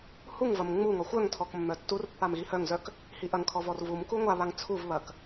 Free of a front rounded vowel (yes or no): no